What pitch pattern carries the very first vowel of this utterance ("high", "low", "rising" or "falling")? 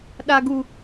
high